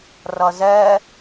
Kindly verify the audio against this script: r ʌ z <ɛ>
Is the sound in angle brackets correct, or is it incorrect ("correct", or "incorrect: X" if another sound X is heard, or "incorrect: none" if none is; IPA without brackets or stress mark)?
correct